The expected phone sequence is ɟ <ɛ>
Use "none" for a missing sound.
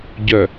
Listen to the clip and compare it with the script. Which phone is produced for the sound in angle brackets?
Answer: œ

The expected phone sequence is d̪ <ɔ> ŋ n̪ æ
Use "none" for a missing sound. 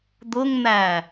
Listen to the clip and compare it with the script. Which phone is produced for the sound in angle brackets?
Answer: ʊ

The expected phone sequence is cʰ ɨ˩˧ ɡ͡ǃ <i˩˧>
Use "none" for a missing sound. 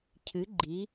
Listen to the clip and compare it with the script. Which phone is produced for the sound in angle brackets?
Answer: i˩˧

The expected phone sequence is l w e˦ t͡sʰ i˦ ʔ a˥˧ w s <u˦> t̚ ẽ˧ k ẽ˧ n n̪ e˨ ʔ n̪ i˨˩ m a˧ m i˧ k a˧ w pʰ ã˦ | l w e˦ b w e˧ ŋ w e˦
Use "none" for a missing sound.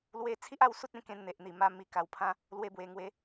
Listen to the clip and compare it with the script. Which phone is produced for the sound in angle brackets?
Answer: u˦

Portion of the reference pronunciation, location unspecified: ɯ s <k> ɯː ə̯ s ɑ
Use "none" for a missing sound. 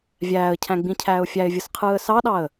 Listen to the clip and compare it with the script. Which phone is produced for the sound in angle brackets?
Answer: qʰ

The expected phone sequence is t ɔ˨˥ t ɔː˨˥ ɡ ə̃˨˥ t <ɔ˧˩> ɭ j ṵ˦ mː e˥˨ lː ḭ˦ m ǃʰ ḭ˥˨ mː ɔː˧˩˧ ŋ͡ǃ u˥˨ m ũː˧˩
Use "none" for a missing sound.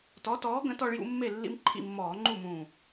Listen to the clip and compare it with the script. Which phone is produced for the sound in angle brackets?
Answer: ɔ˦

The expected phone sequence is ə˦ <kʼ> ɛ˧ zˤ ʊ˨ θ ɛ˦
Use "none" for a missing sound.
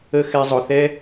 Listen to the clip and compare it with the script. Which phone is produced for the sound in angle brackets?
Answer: x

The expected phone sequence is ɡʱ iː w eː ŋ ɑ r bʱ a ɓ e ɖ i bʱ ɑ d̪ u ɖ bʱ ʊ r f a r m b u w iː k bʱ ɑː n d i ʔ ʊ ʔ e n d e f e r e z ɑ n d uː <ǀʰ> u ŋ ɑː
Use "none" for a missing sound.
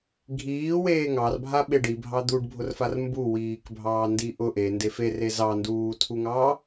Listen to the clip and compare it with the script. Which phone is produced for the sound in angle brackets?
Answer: tʰ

